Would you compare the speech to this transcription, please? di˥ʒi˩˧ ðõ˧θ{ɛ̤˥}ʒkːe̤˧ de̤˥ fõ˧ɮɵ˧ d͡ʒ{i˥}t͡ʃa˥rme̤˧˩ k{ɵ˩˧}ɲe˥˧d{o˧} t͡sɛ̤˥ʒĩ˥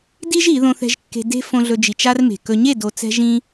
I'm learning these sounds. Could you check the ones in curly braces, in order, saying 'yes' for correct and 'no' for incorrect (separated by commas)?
no, no, no, yes